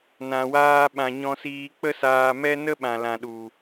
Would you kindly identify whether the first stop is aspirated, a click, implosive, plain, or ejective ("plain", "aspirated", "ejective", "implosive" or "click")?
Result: implosive